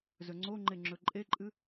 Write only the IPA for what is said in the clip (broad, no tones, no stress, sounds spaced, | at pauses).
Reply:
z ɵ ŋ͡ǀ o ŋ͡ǃ e ŋ͡ǁ ɵ ǃʼ e ǃʼ ɨ